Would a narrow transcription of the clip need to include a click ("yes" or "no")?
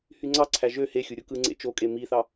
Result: yes